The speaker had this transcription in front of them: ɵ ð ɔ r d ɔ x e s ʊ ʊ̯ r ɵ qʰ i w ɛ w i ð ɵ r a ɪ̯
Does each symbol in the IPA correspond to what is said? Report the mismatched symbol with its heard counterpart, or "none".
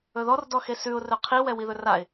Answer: ʊ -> ʉ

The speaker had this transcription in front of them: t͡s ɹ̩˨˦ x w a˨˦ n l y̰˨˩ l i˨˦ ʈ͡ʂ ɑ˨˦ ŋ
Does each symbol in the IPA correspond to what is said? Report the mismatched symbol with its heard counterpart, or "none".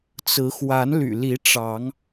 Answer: none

